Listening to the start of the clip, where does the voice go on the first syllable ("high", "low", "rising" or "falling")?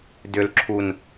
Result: low